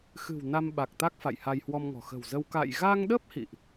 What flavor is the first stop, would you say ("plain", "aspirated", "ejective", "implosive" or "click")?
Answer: implosive